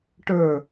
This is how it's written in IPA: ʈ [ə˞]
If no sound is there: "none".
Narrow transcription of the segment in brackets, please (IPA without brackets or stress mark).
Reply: ə˞